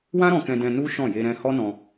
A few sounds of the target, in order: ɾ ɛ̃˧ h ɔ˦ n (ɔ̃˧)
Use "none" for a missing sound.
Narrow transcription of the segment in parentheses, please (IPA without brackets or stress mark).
ɔ̃˧